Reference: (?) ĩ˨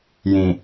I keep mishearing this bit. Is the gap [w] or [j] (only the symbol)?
j